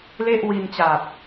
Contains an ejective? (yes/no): no